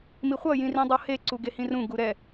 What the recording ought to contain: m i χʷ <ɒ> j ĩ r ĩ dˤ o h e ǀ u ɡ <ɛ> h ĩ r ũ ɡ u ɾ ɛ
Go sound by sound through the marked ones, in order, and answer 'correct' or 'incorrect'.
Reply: incorrect: ʌ, incorrect: e

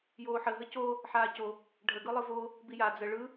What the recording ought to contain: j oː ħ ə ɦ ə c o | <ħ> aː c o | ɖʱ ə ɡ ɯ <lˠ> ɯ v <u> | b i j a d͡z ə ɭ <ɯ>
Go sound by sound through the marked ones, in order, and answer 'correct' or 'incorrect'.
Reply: correct, correct, incorrect: o, correct

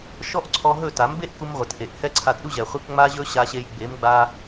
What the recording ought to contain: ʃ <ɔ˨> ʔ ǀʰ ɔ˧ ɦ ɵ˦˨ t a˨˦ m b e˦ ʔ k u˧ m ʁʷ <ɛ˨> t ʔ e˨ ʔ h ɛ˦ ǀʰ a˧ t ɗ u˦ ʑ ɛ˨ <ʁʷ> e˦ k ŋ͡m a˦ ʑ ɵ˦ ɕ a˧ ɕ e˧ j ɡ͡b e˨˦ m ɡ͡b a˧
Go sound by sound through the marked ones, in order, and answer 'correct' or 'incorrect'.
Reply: incorrect: ɔ˦, incorrect: ɪ˨, incorrect: χʷ

